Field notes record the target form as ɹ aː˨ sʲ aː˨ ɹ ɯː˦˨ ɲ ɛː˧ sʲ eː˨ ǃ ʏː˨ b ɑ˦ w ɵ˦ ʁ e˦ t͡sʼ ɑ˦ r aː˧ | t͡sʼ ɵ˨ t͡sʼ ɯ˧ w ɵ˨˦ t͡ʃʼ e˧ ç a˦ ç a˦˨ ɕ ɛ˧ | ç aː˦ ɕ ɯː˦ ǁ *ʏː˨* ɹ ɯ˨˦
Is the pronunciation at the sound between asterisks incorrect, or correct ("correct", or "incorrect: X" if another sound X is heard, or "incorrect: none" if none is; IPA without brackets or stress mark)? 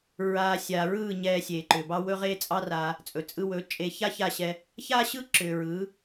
correct